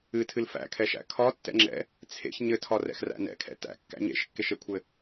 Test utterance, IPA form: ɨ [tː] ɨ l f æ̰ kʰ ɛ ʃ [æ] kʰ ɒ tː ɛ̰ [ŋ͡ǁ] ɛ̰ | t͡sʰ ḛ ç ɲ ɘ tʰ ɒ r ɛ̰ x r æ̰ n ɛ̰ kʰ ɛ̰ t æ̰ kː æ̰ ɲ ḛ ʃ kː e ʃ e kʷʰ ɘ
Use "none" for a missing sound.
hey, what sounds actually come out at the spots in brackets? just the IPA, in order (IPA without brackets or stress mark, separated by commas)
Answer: tʰ, æ̰, ŋ͡ǁ